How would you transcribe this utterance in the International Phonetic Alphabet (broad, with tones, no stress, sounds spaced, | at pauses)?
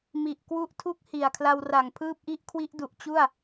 m i˨˩ ʔ k w u˦˥ ʔ tʰ u˦˥ k̚ h i˨˩ a̯ kʰ l a˧ w r a˨˩ ŋ pʰ ɯː˥˩ p̚ ʔ i˥˩ ʔ kʰ w i˦˥ ʔ d u˨˩ ʔ t͡ɕ u˥˩ a̯